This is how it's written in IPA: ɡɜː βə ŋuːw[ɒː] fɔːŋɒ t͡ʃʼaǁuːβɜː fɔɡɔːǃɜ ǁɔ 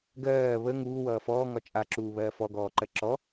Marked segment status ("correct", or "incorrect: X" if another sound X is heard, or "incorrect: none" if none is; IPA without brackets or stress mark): incorrect: ʌː